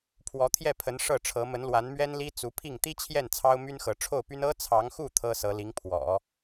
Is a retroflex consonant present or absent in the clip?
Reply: present